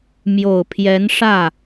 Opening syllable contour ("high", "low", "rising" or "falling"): low